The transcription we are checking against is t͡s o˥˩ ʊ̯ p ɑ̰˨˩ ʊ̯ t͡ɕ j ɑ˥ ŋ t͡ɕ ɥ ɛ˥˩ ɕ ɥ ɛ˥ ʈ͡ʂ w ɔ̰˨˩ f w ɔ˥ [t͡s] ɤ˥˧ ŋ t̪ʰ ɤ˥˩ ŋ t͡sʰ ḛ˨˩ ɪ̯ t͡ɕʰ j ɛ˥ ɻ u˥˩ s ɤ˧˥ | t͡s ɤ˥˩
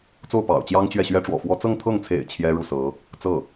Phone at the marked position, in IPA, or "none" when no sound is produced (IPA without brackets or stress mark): t͡s